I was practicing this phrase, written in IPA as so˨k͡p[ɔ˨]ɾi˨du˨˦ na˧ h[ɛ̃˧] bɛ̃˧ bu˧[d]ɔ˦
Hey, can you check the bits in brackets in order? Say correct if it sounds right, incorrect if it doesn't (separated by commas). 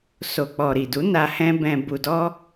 correct, correct, correct